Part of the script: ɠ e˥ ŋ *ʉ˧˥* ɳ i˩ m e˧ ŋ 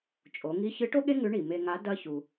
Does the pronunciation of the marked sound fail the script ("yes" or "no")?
no